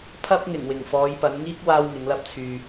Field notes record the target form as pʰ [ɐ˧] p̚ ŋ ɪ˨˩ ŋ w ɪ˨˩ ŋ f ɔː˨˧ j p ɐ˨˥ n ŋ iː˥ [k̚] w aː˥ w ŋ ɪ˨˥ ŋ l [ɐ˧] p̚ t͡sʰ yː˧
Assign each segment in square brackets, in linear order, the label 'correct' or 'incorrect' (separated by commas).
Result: incorrect, correct, incorrect